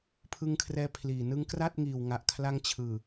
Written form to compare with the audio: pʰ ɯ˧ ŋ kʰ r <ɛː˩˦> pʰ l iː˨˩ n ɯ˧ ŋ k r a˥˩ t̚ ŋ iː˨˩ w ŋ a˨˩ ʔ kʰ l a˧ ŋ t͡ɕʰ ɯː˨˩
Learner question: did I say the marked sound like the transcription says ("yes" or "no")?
no